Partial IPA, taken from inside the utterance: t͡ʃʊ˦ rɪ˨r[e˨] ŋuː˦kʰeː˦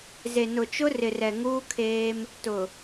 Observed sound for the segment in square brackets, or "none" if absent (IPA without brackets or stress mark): ɛ˨